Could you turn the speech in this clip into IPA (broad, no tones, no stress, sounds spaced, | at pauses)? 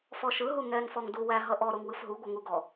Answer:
f ɔ ʃ ɯ ɦ u ŋ ɛ ŋ f ɔ ŋ d u w æ ɦ ʌ ʔ ɔ ɾ o ŋ w ɯ f ɦ u ɡʷ ʌ ŋ u ɡ ɔ